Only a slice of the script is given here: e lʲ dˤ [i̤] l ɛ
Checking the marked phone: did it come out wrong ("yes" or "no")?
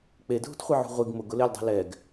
no